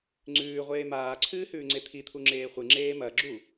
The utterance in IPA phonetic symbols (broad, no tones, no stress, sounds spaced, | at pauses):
ŋ͡ǀ ʉː ʁʷ eː m aː ǀʰ ɨː h ʉː ŋ͡ǀ e t̪ʰ i t̪ʰ u ŋ͡ǁ eː χʷ ɨ ŋ͡ǁ eː m ɐ ɡ͡ǁ u